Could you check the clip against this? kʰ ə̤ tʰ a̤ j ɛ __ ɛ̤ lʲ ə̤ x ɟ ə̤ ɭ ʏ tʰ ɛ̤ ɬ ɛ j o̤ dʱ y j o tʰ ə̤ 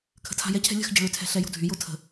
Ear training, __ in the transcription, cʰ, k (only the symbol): cʰ